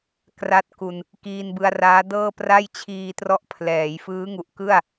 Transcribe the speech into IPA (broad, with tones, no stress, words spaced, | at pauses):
kra˥˩t̚ku˧n | kiː˧nbɯ˧a̯raː˦˥dɤː˥˩ pra˥˩jt͡ɕʰiː˧trɔ˦˥ʔ pʰlɛː˩˦j fɯː˦˥ŋu˨˩ʔ kɯ˥˩a̯